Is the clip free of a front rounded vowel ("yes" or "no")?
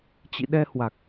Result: yes